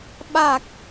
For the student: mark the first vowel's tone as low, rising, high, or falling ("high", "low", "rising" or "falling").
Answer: low